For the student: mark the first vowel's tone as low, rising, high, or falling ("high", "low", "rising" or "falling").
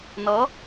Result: rising